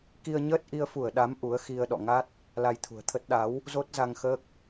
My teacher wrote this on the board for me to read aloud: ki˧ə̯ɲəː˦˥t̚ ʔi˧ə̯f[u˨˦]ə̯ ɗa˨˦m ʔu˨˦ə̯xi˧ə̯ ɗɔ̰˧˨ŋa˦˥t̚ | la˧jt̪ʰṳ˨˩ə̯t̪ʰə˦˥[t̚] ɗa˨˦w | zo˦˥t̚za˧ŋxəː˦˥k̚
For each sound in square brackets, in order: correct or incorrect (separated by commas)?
incorrect, correct